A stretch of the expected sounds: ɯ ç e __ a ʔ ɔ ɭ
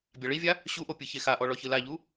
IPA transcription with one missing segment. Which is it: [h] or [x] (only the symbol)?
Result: x